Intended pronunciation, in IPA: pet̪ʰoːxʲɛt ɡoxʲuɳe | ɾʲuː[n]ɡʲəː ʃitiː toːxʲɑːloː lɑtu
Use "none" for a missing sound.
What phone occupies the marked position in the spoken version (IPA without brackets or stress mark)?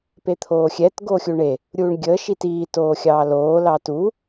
ɳ